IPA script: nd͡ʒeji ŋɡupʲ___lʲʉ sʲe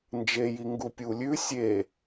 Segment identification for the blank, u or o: u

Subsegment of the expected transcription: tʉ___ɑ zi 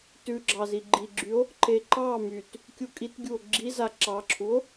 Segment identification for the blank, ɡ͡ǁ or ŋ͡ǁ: ɡ͡ǁ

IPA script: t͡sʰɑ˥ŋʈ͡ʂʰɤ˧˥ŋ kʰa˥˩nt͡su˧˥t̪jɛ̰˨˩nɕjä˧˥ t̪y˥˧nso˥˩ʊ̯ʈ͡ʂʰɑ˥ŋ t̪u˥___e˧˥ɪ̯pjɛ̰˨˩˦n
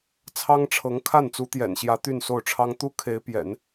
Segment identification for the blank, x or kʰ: kʰ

